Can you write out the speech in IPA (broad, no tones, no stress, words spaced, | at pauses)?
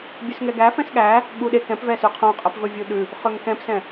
bʲʉsŋɛɡæ fɛ̃sɠæ | ɠuɗe kɛ̃pvɛsʉ qʰõqʼɛpvɵvʲu ɗʉ | χøŋkɛ̃psɛ̃